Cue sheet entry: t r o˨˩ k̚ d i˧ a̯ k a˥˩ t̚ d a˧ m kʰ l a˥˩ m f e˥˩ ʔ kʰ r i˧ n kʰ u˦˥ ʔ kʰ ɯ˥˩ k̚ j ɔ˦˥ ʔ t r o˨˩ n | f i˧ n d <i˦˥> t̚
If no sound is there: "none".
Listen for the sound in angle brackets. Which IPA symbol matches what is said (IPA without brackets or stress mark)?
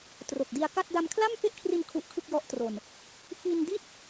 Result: i˥˩